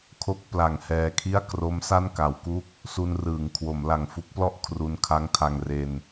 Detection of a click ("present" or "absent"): absent